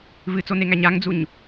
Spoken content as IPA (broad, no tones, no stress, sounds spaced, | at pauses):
v ɨ t͡s o n e ŋ æ ɲ a ŋ d͡z u ɲ